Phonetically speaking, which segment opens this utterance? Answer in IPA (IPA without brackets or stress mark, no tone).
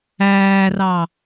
æː